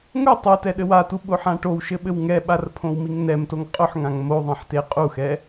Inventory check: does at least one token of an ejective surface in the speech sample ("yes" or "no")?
yes